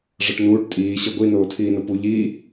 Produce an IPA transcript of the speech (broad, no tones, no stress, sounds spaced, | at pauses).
ʐ ɤ ʈ n uː ʈ tʼ iː ɕ ɤ ɡʷ i n oː tʰ iː n o p u ʎ iː